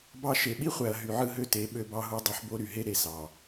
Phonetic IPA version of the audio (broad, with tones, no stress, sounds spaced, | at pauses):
b ɑ˦ ʃ e˨ ɓ i˦ χʷ æ˨ ɐ̯ ɦ y˨ ʕ ɯ˦ ɦ ø˦ t e˨˦ ɓ ø˦ b ɑ˦ ɦ u˦ dˤ ø˦ ħ b o˦ ɾ y˨ ɦ e˦ ɾ e˨ s ɑ˨